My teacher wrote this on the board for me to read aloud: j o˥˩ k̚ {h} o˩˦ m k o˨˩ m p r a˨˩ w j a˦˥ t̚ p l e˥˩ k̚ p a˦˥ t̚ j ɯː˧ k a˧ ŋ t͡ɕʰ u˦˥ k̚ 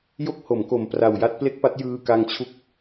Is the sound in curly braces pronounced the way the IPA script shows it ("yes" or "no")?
yes